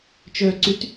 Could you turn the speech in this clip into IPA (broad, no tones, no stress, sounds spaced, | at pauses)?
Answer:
t͡ʃ œ ǀ y t